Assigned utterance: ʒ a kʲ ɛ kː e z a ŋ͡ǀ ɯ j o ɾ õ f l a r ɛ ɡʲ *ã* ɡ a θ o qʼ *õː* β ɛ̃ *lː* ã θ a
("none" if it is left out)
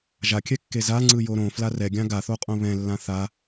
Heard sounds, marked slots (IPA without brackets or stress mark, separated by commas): ã, õ, lː